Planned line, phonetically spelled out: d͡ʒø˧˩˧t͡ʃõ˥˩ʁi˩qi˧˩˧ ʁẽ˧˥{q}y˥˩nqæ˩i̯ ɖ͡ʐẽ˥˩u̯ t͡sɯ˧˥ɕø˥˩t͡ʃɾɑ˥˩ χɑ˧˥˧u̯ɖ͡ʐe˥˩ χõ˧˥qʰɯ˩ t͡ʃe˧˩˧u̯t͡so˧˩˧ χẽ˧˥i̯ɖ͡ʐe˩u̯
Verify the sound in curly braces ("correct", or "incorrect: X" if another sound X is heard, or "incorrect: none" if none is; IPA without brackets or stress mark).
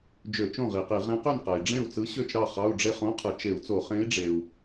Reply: correct